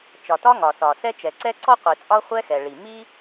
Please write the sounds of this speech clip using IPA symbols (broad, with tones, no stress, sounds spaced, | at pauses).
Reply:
t͡ʃ ɒ˩ t ɒ˥ ŋ ɒ˩ s ɒ˩ s ɛ˥ t͡ʃ ɛ˩ ǀ ɛ˥ ǀ ɔ˥ qʷ i˩ t͡sʼ ɒ˥ χʷ ɛ˥ x ɛ˩ ɭ i˩ m i˥